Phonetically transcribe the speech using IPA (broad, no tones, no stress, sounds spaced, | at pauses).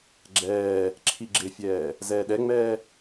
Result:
ɡ͡ǁ ɛː | ǁʰ i ɡ͡ǁ ɪ fʲ ɛː | z ɛː ɗ ɛ ŋ͡m ɛː